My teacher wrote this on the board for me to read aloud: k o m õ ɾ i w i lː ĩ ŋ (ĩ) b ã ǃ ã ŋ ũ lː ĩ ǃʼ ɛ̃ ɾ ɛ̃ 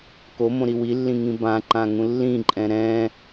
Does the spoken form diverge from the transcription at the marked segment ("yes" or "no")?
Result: no